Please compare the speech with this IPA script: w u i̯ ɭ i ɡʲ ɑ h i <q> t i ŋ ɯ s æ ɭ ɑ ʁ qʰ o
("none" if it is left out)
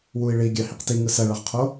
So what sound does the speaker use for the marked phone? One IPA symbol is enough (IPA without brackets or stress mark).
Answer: q